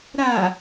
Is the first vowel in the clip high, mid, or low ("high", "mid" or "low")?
low